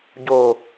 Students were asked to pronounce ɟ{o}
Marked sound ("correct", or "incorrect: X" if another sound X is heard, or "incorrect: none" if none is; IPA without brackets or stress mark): correct